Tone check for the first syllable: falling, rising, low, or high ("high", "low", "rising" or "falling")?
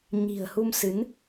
low